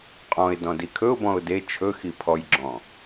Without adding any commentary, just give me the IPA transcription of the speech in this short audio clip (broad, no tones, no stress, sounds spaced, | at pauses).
qʼ ɔ̃ ɪ̯ d ɔ̃ d i kʰ ɵ ʊ̯ b ɔ̃ ʊ̯ d e t͡ʃʰ ɵ x i pʰ ɔ j ɡ͡ǁ ɔ̃